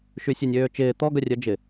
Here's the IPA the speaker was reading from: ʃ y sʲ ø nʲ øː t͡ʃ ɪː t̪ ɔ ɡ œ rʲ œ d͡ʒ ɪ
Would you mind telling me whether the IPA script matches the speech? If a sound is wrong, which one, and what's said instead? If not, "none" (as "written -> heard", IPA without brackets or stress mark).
none